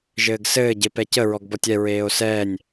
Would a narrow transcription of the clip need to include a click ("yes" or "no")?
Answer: no